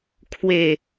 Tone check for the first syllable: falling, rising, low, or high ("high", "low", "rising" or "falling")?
falling